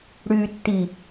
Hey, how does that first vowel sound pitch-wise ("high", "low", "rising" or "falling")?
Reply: low